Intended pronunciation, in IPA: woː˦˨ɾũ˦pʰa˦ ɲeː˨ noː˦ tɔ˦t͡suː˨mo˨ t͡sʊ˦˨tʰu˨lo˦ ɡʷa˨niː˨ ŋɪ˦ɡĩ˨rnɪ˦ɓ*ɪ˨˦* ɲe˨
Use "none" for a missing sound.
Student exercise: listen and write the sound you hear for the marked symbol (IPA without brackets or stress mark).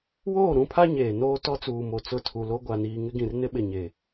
ɪ˨